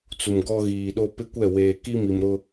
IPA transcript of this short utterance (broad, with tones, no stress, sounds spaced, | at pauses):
t͡s u˨ m ɡ ɔ˦ ɣ iː˨ ɗ o˦ p ɪ˦ kʷ ɛ˦˨ w eː˨ k i˦ m i˨ m ɾ ʊ˦